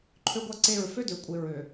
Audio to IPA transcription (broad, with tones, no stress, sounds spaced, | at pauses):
ǃʰ ø˦ ɡʷ a˦ ǀ e˦˨ ɹ f ø˦ d ø˨ kʷʼ e˨ ɹ ø˨